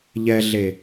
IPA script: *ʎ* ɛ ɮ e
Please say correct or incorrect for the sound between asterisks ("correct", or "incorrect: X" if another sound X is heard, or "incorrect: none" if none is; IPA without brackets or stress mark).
correct